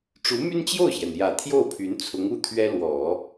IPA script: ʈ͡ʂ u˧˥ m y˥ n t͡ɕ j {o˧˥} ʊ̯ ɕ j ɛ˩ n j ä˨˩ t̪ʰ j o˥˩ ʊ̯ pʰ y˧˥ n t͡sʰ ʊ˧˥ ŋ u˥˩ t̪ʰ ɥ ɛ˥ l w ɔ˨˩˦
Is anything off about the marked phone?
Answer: yes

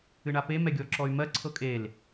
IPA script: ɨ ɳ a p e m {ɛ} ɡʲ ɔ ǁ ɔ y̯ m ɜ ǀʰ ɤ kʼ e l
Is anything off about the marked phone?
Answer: no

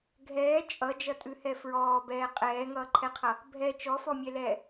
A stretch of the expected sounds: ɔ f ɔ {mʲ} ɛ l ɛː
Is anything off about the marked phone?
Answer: no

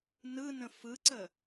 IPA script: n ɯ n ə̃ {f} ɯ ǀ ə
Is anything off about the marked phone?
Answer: no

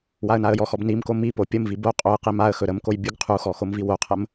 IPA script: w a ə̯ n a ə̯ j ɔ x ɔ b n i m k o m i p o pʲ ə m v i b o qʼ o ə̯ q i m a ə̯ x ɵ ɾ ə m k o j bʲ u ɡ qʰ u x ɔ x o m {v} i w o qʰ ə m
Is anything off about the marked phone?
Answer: no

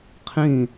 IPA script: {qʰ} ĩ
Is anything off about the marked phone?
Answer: no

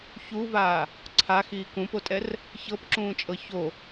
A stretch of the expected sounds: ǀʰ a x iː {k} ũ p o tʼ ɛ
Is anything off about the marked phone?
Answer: no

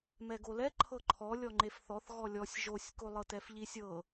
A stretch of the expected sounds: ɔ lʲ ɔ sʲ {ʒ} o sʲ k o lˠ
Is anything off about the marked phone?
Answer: no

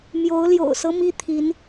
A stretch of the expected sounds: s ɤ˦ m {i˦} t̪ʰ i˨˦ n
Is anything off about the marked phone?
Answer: no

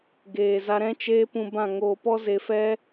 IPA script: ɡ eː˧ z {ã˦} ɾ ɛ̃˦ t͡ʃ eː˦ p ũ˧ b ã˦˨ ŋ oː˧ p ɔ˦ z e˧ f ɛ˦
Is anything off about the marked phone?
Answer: yes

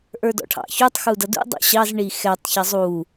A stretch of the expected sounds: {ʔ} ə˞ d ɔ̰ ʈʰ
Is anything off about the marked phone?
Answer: no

